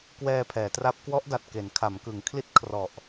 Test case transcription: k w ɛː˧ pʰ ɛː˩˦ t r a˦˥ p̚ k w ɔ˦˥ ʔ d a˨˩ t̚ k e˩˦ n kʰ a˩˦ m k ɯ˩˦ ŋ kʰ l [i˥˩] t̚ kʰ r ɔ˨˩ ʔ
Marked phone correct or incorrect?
correct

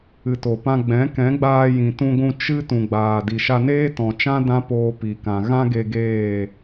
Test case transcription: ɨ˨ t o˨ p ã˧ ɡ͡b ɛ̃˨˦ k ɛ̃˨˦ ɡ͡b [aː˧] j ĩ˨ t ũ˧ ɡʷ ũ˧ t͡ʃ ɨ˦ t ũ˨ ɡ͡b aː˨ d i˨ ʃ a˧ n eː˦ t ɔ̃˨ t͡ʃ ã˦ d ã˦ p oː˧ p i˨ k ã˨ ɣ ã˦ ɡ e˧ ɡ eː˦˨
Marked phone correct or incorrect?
correct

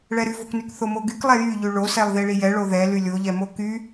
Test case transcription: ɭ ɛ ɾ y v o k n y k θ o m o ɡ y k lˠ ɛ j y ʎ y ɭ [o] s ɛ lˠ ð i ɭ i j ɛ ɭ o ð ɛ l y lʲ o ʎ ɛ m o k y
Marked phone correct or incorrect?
correct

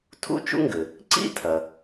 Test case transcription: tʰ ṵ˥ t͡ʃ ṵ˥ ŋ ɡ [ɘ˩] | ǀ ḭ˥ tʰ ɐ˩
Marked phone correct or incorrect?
correct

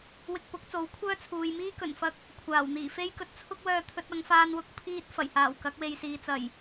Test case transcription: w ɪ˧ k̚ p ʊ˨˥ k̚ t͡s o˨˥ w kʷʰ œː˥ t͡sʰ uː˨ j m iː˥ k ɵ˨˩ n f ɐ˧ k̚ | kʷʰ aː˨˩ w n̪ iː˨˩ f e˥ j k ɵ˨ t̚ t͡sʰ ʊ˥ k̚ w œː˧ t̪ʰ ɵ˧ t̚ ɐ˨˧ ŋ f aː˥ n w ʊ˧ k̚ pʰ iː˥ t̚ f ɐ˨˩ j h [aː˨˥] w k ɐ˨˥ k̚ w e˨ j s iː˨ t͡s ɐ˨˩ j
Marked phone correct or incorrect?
incorrect: aː˨˩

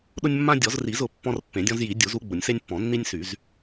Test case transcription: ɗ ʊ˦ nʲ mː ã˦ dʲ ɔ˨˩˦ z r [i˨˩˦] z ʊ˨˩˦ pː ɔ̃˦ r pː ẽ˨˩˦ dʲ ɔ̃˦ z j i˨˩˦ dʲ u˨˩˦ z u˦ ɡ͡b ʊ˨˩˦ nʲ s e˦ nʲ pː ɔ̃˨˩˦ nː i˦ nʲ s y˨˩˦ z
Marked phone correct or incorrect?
correct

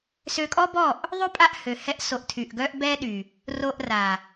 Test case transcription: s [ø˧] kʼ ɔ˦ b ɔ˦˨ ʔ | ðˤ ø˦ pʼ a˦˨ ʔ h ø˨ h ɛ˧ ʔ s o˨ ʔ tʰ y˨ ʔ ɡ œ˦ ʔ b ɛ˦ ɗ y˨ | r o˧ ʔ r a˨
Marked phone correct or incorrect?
correct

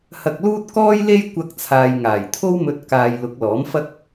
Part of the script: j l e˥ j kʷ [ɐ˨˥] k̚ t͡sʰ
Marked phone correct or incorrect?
incorrect: ɐ˧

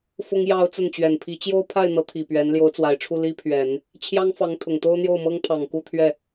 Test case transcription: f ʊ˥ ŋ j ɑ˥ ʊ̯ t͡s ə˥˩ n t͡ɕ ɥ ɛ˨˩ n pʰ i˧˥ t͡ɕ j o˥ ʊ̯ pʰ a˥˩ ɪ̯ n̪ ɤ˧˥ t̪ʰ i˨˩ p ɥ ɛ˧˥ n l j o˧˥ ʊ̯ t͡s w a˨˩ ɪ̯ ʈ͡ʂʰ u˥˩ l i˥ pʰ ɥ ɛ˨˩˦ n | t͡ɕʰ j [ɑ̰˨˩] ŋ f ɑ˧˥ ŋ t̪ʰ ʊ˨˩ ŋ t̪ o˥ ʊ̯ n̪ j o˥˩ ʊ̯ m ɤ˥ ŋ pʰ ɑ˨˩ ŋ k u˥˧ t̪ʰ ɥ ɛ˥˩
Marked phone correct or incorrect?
incorrect: ɑ˥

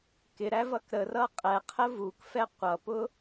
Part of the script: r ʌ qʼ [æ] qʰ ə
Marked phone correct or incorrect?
incorrect: ɛ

